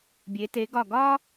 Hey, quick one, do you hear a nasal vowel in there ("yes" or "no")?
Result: no